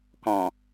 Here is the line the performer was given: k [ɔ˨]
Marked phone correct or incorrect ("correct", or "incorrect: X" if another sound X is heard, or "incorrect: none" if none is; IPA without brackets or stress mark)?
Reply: incorrect: ɔ̃˨